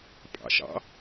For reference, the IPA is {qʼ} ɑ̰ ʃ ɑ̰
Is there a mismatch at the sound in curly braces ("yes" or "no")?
yes